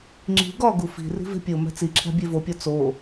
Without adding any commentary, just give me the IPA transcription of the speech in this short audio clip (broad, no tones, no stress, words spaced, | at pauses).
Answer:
ŋ͡ǁi̤ ɡɒɡu fi̤ ri̤ve̤pʲomæ̤ t͡siǁʰæ̤ bʲevopʲɒ t͡so